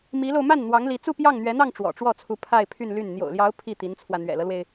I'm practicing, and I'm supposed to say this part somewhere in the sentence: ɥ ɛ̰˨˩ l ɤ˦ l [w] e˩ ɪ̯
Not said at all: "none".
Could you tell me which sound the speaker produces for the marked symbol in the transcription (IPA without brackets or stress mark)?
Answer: w